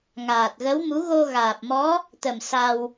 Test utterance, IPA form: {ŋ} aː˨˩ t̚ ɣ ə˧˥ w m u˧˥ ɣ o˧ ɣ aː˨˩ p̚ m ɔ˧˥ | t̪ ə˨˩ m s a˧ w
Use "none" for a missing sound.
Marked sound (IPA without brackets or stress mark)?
ŋ